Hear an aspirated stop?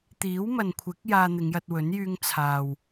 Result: yes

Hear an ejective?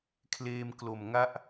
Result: no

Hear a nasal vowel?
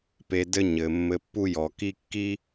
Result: no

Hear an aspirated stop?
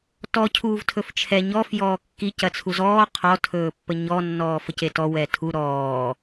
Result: yes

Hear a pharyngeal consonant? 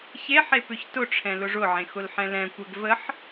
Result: yes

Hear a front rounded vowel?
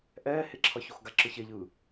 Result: no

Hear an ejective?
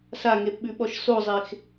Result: no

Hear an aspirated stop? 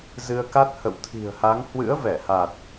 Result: yes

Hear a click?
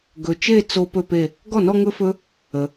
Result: no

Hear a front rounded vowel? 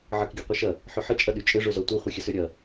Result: yes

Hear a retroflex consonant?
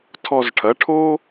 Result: yes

